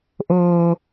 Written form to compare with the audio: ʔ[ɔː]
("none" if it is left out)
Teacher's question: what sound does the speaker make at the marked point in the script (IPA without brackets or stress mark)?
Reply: oː